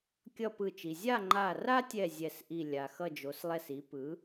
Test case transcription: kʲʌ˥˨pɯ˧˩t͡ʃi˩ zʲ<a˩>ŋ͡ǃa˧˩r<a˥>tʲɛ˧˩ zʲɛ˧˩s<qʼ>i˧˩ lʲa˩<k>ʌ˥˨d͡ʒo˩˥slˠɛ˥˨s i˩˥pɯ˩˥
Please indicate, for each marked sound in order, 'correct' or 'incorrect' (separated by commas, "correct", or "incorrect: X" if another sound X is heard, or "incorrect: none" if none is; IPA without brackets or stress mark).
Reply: incorrect: a˥˨, correct, incorrect: ʔ, incorrect: x